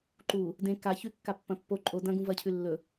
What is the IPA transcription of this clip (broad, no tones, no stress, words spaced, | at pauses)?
ǃu | dẽ ka çʉkːapːɐ̃ pːo ǃʼo dɐ̃ɡũ vɐcʰʉ lːɵ